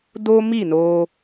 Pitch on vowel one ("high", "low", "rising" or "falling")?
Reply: high